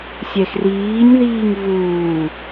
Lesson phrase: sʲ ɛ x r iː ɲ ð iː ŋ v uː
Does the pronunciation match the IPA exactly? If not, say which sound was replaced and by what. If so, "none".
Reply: none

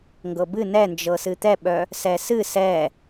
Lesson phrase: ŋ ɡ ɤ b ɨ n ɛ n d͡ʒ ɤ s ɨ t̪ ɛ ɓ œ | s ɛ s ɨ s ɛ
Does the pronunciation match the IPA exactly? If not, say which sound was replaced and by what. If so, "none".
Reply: none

